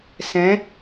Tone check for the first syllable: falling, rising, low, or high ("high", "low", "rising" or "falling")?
rising